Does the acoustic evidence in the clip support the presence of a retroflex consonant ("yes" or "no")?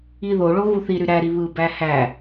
yes